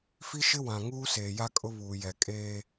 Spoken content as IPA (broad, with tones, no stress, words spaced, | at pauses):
fi˦ʃɪ˦ wã˨ŋuː˦se˨ ja˦kʼʊ˦βuː˨jɛ˨ kʼeː˦